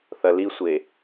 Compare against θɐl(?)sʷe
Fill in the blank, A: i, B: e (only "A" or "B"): A